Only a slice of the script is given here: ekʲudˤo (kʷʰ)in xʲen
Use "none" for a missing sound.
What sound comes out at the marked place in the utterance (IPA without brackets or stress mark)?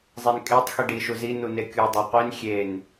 qʷ